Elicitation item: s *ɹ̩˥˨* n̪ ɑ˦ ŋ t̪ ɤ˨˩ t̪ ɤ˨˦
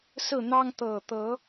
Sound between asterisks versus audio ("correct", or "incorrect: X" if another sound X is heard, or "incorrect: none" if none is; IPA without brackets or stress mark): correct